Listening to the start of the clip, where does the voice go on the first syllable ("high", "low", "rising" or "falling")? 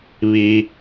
low